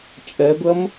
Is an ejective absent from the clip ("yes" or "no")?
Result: no